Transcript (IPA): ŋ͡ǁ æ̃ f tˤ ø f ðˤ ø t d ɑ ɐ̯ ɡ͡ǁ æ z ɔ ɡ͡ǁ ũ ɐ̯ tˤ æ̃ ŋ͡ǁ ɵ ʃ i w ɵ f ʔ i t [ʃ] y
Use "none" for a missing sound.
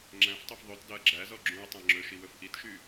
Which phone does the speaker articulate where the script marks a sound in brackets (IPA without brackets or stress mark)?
ʃ